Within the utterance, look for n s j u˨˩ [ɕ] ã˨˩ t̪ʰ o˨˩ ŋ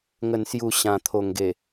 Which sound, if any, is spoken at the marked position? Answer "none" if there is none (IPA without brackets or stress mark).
ɕ